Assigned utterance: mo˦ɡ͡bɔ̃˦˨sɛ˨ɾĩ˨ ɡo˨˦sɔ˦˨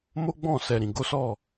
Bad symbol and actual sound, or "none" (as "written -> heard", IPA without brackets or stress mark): none